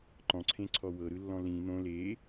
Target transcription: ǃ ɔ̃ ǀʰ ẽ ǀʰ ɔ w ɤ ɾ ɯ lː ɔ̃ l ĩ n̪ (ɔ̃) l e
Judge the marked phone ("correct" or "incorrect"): incorrect